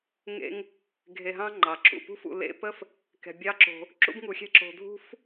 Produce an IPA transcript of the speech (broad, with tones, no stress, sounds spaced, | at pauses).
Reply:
ŋ ḛ˧ ŋ | ɡʱ e˧ ɦ ɑ̃˥ ŋ͡ǃ ɑ˩ ǁ ṵ˩ p ṳ˥ f ṵ˧ l ḛ˥ p ə˥ f | k ɛ̤˧ bʲ ɑ˥ ǁ o̤˧ | ǁ ṵ˥ b ŋ u˧ xʲ ɛ̤˥ ǁ o̤˧ dʱ ṳ˥ f